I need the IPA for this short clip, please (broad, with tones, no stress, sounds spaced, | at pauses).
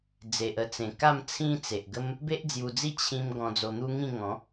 d͡z e˨ ʔ ə˧ t͡s ẽ˨˩ k a˥˧ m t͡sʰ ĩ˦ t͡s e˨ ʔ ɡ ə˦ m | b e˦ ʔ d͡z j u˧ d͡z i˥˧ t͡ɕʰ ĩ˧ m ɡ ɔ̃˧ d͡z o˧ n̪ u˦ ŋ ĩ˥˧ ŋ ɔ̃˨˦